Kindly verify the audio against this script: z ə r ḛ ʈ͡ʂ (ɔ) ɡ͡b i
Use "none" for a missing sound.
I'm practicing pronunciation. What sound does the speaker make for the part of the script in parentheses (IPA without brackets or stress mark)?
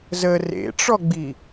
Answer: ɔ